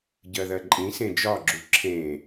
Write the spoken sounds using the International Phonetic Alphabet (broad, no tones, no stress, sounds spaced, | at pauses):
ɟ ɜ ð ɜ ǃʼ ĩ s ẽ d͡ʒ ɒ ɡ͡ǁ u ǁʰ ẽ